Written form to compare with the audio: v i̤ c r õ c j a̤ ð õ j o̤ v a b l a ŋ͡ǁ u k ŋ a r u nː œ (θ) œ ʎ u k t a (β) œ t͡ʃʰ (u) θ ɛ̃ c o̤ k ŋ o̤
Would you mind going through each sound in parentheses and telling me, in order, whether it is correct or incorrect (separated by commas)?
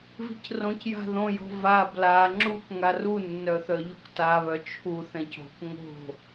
correct, correct, correct